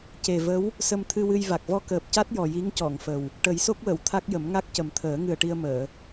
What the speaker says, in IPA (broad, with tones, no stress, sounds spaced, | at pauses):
c e˨˩ v ə˧˥ w | s ə˧ m t̪ʰ ɨ˧ w ɨ˧ j v a˨˩ k̚ v ɔ˧ k əː˨˩ p̚ c a˦˥ t̚ j ɔ˨˩ j i˧˥ ŋ c ɔ˨˩˨ ŋ f ə˨˩ w | ʈ ə˨˩˦ j s o˦˥ k̚ w ə˨˩˨ w t̪ʰ a˦˥ k̚ j ə˨˩˦ m ŋ a˦˥ k̚ c ə˨˩ m t̪ʰ əː˨˩˦ ŋ ɨ˨˩ ə̯ ʈ i˧ ə̯ m əː˨˩˨